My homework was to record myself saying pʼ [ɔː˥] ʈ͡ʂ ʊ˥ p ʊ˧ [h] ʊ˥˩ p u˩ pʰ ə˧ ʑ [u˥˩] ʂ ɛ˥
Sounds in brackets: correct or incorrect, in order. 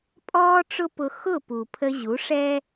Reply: correct, incorrect, incorrect

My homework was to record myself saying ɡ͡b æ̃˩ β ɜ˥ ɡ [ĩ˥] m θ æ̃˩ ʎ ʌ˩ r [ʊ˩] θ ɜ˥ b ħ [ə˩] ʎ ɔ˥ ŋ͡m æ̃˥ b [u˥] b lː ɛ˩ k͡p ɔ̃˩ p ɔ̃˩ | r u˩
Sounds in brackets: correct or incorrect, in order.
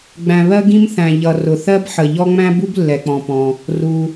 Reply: correct, correct, correct, correct

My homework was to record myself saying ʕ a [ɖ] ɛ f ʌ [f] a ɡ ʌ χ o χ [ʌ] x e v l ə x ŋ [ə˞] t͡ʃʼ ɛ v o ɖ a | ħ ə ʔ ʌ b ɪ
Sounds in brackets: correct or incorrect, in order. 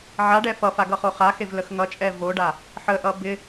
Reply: correct, correct, incorrect, incorrect

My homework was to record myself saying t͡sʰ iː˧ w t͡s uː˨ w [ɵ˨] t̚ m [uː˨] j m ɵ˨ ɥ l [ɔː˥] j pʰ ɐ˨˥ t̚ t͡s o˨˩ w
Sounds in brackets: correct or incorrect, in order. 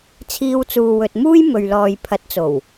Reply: correct, incorrect, incorrect

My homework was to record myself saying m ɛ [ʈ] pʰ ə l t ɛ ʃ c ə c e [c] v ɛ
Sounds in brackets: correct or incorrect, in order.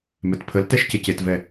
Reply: incorrect, incorrect

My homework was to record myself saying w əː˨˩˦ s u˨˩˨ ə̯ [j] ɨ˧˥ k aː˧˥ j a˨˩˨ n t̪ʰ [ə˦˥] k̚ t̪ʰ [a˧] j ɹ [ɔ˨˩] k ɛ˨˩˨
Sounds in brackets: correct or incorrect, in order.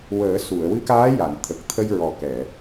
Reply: incorrect, incorrect, incorrect, correct

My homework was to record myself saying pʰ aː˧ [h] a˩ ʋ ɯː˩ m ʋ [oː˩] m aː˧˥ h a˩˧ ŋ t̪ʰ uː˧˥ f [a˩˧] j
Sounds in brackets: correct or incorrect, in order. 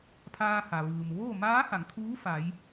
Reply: correct, incorrect, correct

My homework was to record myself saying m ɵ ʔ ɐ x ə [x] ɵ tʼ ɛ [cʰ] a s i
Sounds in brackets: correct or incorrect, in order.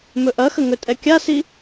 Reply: incorrect, incorrect

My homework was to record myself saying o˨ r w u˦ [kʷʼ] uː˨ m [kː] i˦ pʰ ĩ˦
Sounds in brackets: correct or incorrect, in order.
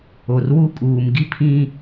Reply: incorrect, incorrect

